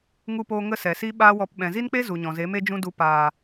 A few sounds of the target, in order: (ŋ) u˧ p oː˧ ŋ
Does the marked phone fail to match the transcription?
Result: no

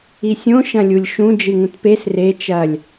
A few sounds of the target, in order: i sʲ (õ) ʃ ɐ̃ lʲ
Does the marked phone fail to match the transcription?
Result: no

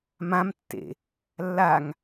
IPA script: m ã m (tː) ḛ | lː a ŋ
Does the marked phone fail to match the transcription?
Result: no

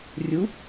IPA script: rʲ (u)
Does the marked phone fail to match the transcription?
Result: no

